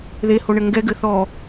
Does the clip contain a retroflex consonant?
yes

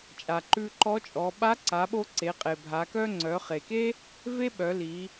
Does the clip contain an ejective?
yes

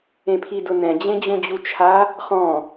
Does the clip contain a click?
no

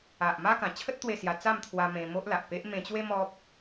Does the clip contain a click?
no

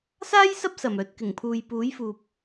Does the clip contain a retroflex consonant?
no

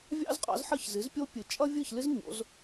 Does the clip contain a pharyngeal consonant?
yes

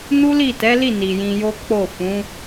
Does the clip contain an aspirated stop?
no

